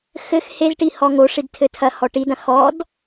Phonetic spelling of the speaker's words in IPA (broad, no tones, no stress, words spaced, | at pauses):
xɘx hezʈi hɔŋoʂid tʰɘtʰɐhɔ ʈidɐ̃ xɔd